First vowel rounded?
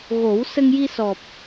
yes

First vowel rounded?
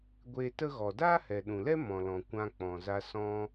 no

